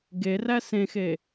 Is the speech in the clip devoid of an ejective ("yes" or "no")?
yes